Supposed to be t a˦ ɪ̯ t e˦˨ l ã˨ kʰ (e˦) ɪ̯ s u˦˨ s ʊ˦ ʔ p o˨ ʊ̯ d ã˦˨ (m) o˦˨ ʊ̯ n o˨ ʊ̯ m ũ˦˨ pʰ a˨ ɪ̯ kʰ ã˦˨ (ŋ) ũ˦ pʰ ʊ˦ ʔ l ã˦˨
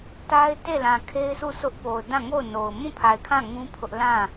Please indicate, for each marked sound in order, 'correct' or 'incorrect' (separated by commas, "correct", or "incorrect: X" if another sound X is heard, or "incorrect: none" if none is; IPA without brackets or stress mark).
correct, incorrect: ŋ, correct